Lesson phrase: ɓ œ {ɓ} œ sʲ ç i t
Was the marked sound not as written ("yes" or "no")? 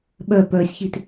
yes